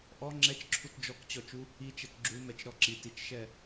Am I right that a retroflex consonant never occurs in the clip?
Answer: yes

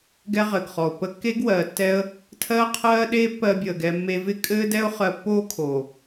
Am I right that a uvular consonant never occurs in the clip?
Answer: no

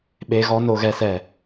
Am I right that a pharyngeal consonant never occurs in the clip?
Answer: yes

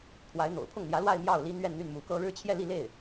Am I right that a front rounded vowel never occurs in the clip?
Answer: no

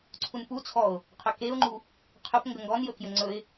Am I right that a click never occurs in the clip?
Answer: no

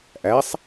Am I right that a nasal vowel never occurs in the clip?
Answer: yes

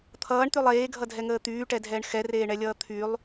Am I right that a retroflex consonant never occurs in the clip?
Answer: no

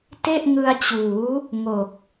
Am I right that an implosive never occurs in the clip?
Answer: yes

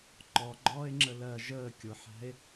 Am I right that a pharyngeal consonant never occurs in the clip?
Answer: no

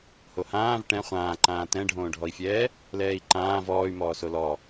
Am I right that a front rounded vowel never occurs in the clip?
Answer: no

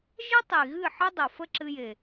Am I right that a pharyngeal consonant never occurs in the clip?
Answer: no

